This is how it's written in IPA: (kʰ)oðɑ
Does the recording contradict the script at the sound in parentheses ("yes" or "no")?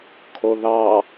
no